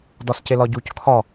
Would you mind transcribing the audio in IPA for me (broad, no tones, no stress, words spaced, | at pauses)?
dɒscelɒɟuc kʰɒ